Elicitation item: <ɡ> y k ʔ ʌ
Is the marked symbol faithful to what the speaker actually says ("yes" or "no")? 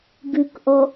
yes